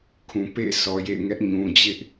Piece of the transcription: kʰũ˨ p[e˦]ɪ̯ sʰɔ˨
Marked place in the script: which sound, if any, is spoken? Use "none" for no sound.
ḛ˦˨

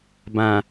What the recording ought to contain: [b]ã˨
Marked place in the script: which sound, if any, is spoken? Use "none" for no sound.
b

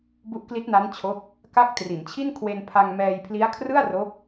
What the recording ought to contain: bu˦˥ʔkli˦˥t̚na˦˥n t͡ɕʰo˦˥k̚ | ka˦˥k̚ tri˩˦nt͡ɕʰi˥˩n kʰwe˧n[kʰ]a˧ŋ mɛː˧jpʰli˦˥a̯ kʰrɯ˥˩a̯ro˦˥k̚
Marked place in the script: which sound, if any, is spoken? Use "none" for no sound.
pʰ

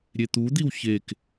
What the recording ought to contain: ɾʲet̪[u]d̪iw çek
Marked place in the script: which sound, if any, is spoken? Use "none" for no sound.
u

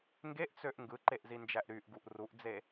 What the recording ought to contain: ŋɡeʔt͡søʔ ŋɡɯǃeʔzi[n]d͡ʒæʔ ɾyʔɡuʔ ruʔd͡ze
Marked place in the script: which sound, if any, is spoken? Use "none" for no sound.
n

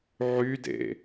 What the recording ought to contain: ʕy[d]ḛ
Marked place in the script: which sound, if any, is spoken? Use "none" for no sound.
d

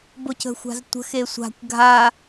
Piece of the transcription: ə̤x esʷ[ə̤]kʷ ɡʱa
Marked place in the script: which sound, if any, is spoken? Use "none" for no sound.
a̤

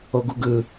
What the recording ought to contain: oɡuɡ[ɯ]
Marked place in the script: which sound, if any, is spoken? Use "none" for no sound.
ɯ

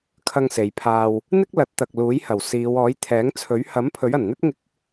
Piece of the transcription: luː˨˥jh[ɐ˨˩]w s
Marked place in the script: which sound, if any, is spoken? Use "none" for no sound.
ɐ˨˩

